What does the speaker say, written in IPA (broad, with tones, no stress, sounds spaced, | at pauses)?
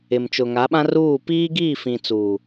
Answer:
ɪ˨ m t͡ʃ ʊ˨ ŋ a˨˦ ɓ ã˦ r uː˦˨ p iː˦ ɡ iː˦˨ f ĩ˨ t͡s uː˨